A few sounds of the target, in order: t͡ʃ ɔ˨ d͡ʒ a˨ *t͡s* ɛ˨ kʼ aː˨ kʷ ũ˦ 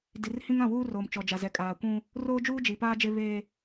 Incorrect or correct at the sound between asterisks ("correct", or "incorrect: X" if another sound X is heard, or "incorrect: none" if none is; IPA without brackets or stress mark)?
incorrect: z